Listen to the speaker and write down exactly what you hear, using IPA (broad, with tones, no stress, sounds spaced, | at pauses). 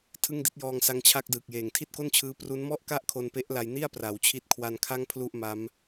tʰ ɯ˥˩ ŋ d i˦˥ t̚ j ɔː˧ ŋ s a˧ ŋ t͡ɕʰ a˥˩ k̚ d ɯː˨˩ k̚ j eː˨˩ ŋ tʰ i˥˩ t̚ k o˥˩ n t͡ɕʰ ɯː˦˥ p r u˦˥ n m ɔ˥˩ ʔ k a˥˩ ʔ kʰ o˧ n p e˦˥ ʔ l a˧ j n i˥˩ a̯ p r a˩˦ w t͡ɕʰ i˦˥ t̚ kʰ w a˧ n kʰ a˥˩ ŋ pʰ l u˥˩ ʔ m a˦˥ m